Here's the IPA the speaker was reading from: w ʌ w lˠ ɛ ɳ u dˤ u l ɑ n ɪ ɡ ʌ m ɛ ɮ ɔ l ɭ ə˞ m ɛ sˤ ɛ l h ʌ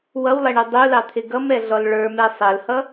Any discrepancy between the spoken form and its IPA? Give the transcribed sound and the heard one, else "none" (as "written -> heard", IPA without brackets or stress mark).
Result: n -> t̪ʰ